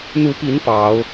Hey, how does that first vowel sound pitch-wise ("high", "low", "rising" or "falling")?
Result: rising